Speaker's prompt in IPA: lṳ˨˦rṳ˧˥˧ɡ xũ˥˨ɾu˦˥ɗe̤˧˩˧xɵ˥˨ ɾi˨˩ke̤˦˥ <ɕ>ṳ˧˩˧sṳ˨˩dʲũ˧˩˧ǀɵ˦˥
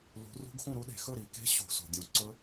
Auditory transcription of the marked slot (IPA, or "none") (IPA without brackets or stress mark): ɕ